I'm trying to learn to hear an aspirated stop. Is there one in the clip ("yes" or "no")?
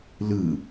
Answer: no